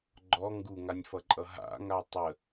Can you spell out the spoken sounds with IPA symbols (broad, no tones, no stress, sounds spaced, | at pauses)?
ɡ͡ǃ ɔ ŋ ɡ u ŋ a nʲ f ʌ ǃʼ ʌ ɦ a̰ ŋ a tˤ ə